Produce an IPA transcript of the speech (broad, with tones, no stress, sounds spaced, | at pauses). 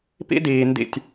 p ḭ˦ d iː˨ n d ḭ˦˨ tʲ